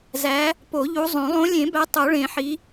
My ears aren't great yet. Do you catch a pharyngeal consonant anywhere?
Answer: yes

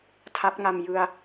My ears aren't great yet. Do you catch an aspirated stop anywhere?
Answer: yes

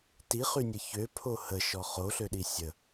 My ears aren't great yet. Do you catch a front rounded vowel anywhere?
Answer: yes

